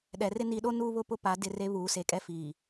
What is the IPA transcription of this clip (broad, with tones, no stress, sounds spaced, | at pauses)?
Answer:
ɗ ɛ˨ r ɪ˦ n i˨˦ ɗ o˦ n uː˦ β ʊ˦ p ʊ˦ p a˨˦ d ɪ˦˨ r e˦ β uː˨˦ s e˨ kʼ ɛ˦ f iː˨